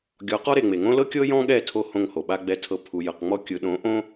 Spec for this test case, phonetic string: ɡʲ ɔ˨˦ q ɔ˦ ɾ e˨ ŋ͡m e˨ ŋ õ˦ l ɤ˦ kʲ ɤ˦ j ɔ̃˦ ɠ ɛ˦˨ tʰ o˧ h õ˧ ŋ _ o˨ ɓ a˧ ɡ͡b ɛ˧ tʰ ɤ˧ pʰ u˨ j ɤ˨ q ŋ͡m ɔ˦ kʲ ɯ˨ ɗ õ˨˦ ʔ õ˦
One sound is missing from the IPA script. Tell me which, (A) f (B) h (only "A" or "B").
B